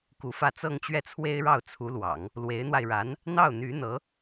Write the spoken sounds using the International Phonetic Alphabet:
k u˧˥ f ä˥˧ t͡s ɤ˥˧ ŋ t͡ɕ ɥ ɛ˥˩ t͡sʰ w e˥ ɪ̯ ɻ ɑ˥˩ ʊ̯ t͡sʰ u˧˥ l w ɑ̰˨˩˦ ŋ | l w e˧˥ ɪ̯ n̪ w a˧ ɪ̯ ɻ a˧˥ n | n̪ ɑ˥˩ ʊ̯ n̪ y˧˥ n̪ ɤ˧˥

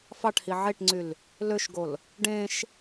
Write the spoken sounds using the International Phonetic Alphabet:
f ɑ ʈ h i ʕ e ʈ ŋ͡ǀ y l | l ø ʃ ɡ o l | ɖ ẽ ʃ

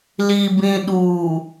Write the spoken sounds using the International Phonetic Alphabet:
l i˨ b ĩ˨ ɗ u˨

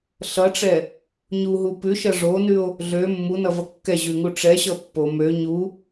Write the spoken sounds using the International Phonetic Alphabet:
ɬ ʌ ʈ͡ʂ ɛ | ɲ u ɦ u p ʉ ʃ ʌ ʐ o n ʉ o̯ | ɮ ø mː u n ʌ v ʌ kː ɛ ʑ ʉ ŋ u ʈ͡ʂ ɛ ɕ ʌ pː o m ø ɲ u

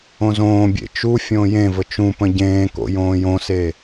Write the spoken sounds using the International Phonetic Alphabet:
õ z õː bʲ ḛ t͡ʃ u fʲ õː j ẽ v ə t͡ʃ ũ p ə̃ ɟ ẽː k o̰ j õː j õ s e

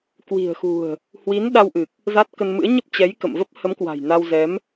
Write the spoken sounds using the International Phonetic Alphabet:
k w i̤˨˩ ə̯ x ṳ˨˩ ə̯ | h w i˨˦ n ɗ a˧ w ʔ ɨ˨˩ k̚ | z a˦˥ t̚ k ə˧ n m ɨ̰˧˥ ə̯ ɲ ə˦˥ p̚ t͡ɕ ɛ˨˦ j k ə̰˧˨ m v ə˦˥ p̚ h ə˨˦ m k w a̤˨˩ j n a˧ w z ɛ˨˦ m

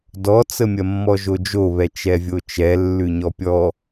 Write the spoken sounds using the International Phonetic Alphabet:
d ɔ t͡s ə mʲ ɐ mː ɔ ʒ o d͡ʒ o β ɛ t͡ʃ ɛ vʲ o t͡ʃ ɛ lː ʉ ɲ ɔ pʲ ɔ

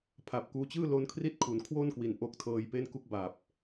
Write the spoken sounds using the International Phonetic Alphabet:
pʰ a˨˩ p̚ k uː˧ t͡ɕ ɯː˥˩ l o˦˥ n kʰ r i˥˩ t̚ kʰ u˩˦ n kʰ w o˥˩ n k w i˨˩ n ʔ o˦˥ k̚ tʰ ɤː˧ j p e˥˩ n k u˦˥ k̚ b a˨˩ p̚

